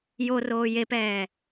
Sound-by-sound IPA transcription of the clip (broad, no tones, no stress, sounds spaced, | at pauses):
j o r oː j e p ɛː